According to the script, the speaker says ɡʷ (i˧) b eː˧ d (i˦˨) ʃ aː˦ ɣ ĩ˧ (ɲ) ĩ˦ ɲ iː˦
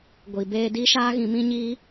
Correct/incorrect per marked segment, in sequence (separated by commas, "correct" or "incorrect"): incorrect, incorrect, incorrect